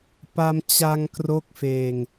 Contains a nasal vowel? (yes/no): no